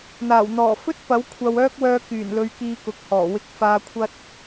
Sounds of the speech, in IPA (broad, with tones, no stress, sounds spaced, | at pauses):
n̪ aː˨˩ w n̪ ɔː˨˩ f ɵ˥ t̚ p ɐ˨˥ w kʷʰ ɐ˧ w œː˥ k̚ w œː˧ k yː˨˩ n l ɵ˨˧ ɥ k iː˧ k ʊ˨ k̚ h ɔː˨˩ w ɪ˨ k̚ f aː˨ kʷʰ ɐ˧ t̚